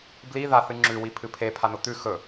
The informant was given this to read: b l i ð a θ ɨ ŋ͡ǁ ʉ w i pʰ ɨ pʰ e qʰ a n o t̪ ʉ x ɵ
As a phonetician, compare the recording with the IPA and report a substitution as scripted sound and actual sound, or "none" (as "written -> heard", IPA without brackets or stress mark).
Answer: qʰ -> pʰ